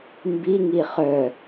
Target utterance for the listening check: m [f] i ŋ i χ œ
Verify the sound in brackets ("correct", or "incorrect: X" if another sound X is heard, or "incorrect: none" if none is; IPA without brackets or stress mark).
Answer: incorrect: b